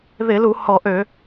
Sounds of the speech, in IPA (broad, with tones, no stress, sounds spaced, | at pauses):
ð ɪ˧˩˧ l u˧˩˧ h ɔ˧˩˧ ʔ ø˧˩˧